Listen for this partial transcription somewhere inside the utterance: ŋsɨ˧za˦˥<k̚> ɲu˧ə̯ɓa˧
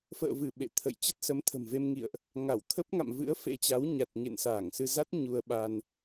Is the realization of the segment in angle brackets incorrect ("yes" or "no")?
yes